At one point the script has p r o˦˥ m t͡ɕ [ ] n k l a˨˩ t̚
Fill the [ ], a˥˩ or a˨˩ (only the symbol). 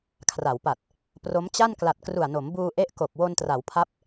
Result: a˥˩